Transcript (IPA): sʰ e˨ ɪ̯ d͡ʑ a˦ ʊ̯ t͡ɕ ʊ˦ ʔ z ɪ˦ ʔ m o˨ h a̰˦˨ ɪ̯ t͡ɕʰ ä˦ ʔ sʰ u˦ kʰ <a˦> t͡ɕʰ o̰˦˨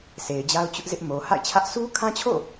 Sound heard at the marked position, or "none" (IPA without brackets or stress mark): ã˦